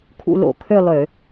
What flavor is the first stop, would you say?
aspirated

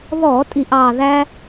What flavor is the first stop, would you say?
ejective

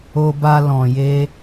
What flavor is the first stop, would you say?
plain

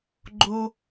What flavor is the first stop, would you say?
click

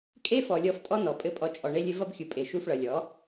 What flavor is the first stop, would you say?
ejective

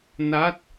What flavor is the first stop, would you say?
plain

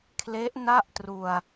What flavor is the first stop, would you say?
aspirated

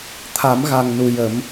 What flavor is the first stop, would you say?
aspirated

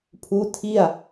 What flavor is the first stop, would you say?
aspirated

